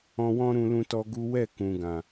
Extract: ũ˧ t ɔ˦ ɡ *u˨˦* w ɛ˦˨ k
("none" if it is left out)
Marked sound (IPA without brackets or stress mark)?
u˦